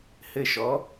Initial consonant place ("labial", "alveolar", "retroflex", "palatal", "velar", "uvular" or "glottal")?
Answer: glottal